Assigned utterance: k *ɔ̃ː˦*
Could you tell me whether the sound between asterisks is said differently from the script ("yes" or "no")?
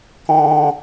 no